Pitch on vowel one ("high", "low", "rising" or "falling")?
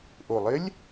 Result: low